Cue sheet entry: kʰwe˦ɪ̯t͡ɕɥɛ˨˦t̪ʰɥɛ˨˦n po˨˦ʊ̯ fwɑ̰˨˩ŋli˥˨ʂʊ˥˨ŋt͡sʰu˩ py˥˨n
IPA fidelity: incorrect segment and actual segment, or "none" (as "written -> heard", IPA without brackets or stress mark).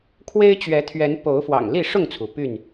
none